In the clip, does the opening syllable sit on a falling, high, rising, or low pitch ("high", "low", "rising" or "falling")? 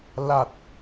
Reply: low